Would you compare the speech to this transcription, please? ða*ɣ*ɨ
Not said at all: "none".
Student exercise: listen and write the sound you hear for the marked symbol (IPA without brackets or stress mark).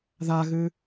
ɣ